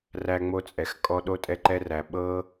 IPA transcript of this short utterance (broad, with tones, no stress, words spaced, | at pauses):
ræ˧ŋ͡mo˧t͡sʼɛ˨xkʼɔ˧ ɗo˦tʼɛ˦ǃɛ˦ræ˧ ɓɤ˦